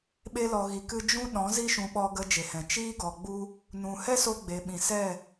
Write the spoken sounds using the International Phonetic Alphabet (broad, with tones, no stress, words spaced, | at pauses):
ɓe˧lɔ˨ɣi˨kɨ˧ d͡ʒũ˦ɗɔ̃˨˦ zi˦ʃũ˧ɓɔ˧ ɡə˧d͡ʒe˨hɛ̃˨ t͡ʃiː˦ɡɔ˨ɡ͡bu˦ | nũ˨hɛ˦so˧ ɡ͡be˨ɓĩ˨sɛ˦˨